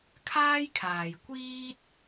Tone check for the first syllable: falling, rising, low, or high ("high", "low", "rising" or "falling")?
high